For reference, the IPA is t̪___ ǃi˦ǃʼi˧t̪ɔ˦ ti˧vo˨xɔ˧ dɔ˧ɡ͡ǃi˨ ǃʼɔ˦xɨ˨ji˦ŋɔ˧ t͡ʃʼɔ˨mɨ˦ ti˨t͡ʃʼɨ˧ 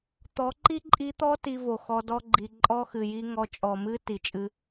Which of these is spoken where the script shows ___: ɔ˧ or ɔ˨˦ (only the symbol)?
ɔ˨˦